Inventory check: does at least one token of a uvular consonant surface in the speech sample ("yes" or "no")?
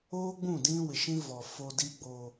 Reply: no